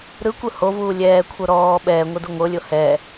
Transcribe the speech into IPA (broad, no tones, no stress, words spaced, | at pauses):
ɾɯkʷɯ hovuː lʲɛːkʷʰɤ ɾɔː ɓɛːŋʷɯdu ŋʷɤlʲo hɛ